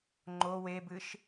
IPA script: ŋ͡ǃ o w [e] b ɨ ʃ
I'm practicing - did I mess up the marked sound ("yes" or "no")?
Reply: no